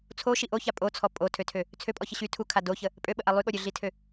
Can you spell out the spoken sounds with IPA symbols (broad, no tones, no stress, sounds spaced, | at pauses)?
t͡sʰ o ʃ i ʔ o ç a pʼ o t͡sʰ ɔ pʼ o tʰ ø tʰ ø | t͡sʰ ø pʼ ɔ ç ə ɕ y tʰ u kʰ a d o ç ə | pʼ ø ɓ ə ʔ a lˠ y ɠ o ɾʲ ø ɮ i tʰ ø